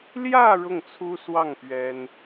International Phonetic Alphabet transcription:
l j ä˥˧ ɻ ʊ˥˩ ŋ t͡sʰ u˥ s w ɑ˥˩ ŋ p ɥ ɛ˥ n

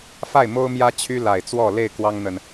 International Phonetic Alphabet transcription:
f a˥˨ ɪ̯ m o˦ ʊ̯ m j ä˦ t͡ɕʰ y˦ l a˨˩ ɪ̯ t͡s w ɔ˥˨ l e˥˨ ɪ̯ k w ɑ˦ ŋ n̪ ə˨ n

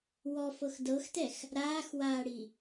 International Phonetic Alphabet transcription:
w ɔ f ɤ x d ɤ x t ɛ x | ɾ aː x w aː ɽ i

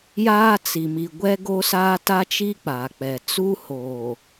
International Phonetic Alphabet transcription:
j aː˦ t͡s i˨ m i˨ ɡʷ ɛ˦ ɡ o˦ s aː˦ t a˦ t͡ʃ i˦ k͡p a˨ k͡p ɛ˨ t͡s uː˦ h oː˨

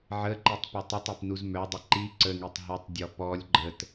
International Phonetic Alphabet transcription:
ʕ ə ǃ i tˤ p e tˤ u tˤ e p n u z m œ dˤ ə ǃ i ǀ ə ŋ e tˤ ɦ ə tˤ dʲ ɔ p ɔ lʲ ɡ͡ǃ ə t

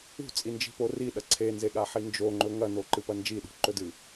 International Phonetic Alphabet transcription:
ṳ t͡sʼ i n d͡ʒ i̤ p o r i ɗ ɐ ǀʰ e n z e ɠ a ħ i n d͡ʒ o ŋ͡ǃ ɵ ŋ ɐ n o ǃ ɨ p ɐ n d͡ʒ i ɗ ṳ ǃ ɵ d ɨ

